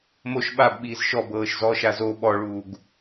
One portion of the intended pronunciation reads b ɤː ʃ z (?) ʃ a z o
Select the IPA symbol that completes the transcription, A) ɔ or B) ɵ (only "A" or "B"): A